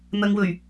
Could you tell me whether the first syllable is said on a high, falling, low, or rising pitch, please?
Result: low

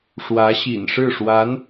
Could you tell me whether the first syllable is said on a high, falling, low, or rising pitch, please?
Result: rising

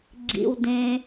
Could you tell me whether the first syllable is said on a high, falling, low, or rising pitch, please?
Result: high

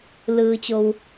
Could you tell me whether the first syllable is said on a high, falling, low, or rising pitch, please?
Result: low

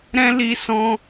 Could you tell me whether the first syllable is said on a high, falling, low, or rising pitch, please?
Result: high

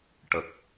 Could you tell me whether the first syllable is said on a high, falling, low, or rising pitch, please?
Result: low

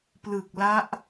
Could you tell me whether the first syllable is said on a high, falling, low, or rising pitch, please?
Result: low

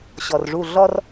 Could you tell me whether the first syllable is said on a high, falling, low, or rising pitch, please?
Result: low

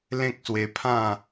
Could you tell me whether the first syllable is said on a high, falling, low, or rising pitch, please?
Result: high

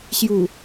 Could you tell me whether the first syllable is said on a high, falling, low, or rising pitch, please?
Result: low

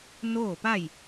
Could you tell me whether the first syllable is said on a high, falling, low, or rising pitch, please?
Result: falling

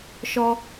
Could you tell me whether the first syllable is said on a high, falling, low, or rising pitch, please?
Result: high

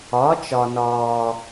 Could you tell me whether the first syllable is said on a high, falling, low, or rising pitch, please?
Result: rising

